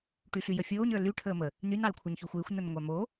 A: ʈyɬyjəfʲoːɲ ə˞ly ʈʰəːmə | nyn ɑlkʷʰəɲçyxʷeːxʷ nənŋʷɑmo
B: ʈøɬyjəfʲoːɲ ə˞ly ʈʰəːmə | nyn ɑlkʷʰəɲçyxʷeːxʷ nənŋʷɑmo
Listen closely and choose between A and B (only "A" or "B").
A